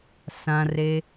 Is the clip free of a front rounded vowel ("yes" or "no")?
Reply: yes